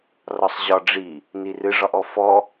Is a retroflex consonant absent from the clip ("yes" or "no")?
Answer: no